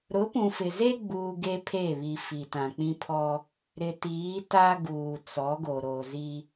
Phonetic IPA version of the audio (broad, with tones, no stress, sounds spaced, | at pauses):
ɾ ʊ˨˦ p ũ˨ f ɪ˨ z e˦ ɡ͡b uː˦ ɡ e˦ pʰ e˦˨ β i˨ f i˨ t ã˨ k͡p ĩ˦ pʰ ɔ˦ | ɾ ɪ˨ t iː˨˦ t a˦ ɡ uː˨ t͡s ɔ˨˦ ɡ o˨ ɾ o˨ z i˦